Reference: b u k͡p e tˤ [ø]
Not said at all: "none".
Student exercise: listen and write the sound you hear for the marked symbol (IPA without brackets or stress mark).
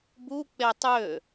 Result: ø